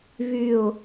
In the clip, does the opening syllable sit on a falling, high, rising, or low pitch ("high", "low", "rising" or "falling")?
falling